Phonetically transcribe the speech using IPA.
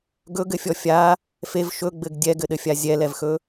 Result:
ɡ ɵ ɡ ɘ fʲ ɔ fʲ a | f e v ʃ ɵ ɡ͡b ɘ ɡ dʲ ɛ ɡ ɘ ɗ ɘ fʲ a zʲ ɛ l ɛ v x ɵ

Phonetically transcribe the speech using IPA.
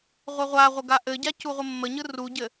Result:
ʁʷ e ʁʷ a ʁʷ ə ɡ a ʔ ɘ ɟ a c u ʁʷ ə mː ə ɲ ɯ r u ɟ ɘ

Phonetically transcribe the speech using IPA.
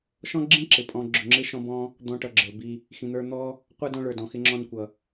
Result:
ʃ ɔ̃˥ ɡ͡ǁ ĩ˥ ǁ ɪ˩ pʼ ɔ̃˦ ɡ͡ǁ ʊ˨ ŋ͡ǁ ɪ˥ ʃ ɔ̃˦ b ɔ̃˦ | d̪ ɔ̃˦ ʈ ʌ˨ ɡ͡ǁ ə˞˩ b i˨ | x ĩ˨ n̪ ə˞˦ n̪ ɔ˥ | qʷ ə˞˥ d ɔ̃˦ ɭ ə˞˩ d ɔ̃˩ x ɪ˦ ŋ͡ǁ ɔ̃˦ n kʷ ʌ˩

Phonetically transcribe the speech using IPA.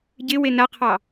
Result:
ɟ ɪ w e n a qʰ ɑ

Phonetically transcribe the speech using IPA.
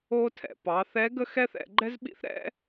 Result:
o˥ tʰ ɛ̰˩ p ɑ˩˧ θ ɛ˧˥ ɡ ə˥ x ɛ˥ θ ɛ̰˧ ɡ͡ǃ ɛ˥ z ɓ ḭ˥ θ ɾ ɛ̰˥

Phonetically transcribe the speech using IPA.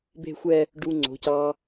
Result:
b e̤˥˧ xʷ ɛ˥˧ | ɖ u˧ ŋ͡ǀ o̤˩˧ c ɑ˧

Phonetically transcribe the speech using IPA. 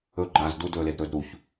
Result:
ɵ ɡ͡ǃ aː z d u d ɵː l e d ɾ ɵː d ɾ u ç

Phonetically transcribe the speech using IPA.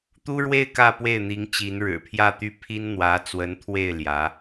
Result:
t̪ u˥ ɻ w e˥˧ ɪ̯ k ä˥˧ p w e˥˩ ɪ̯ n̪ i˧˥ ŋ t͡ɕ i˧˥ n ɻ ɻ̩˨˩ pʰ j ä˥˩ t̪ y˥ pʰ i˥ n n̪ w ä˧˥ t͡s w ə˧˥ n t̪ʰ w e˥˩ ɪ̯ l j ä˧˥

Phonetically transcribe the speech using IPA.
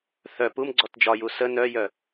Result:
θ œ p u m ɡ͡ǀ ɔ t d͡ʒ ɒ j u s ə n œ j œ

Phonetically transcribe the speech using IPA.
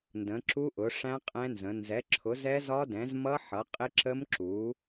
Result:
n d ə̃˨˥ ǁ u˦˥ ʔ ʊ˨˥ ʂ æ̃˦˥ qʼ ɛ̃˦˥ n z ə̃˨˥ n z ɛ˨˥ ǁʰ ʊ˨˥ z ɛ˦˥ z ɒ˦˥ d ɛ̃˨˥ z m ʌ˦˥ ħ ʌ˨˥ qʼ ɪ˦˥ ǁ ə˦˥ m ǁ u˨˥

